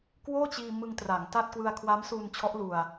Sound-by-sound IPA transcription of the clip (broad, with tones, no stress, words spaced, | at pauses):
kwoː˥˩t͡ɕiː˧ mɯ˧ŋ tra˩˦ŋ ta˥˩t̚ kwɯ˧a̯kʰwa˦˥msuː˧nt͡ɕʰɔ˦˥ʔ lu˧a̯